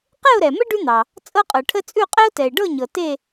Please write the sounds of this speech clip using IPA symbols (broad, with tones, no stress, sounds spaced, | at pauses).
q e˥˨ ʊ̯ ɾ ɛ˩ m ə˥ ɖ ʉ˥ n̪ ɑ˩ | t͡sʼ ɤ˥ qʼ ɤ˩ ʈʰ ə˥ t͡sʼ ʉ˥˨ qʼ ɛ˥ ʊ̯ t ɛ˩ ɪ̯ ɖ ɤ˥˨ ɲ ɤ˩ t e˥˨